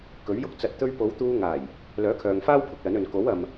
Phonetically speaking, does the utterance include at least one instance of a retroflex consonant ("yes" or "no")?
no